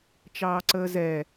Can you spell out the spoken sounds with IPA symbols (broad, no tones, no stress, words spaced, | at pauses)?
t͡ʃɑːǀəːzɛ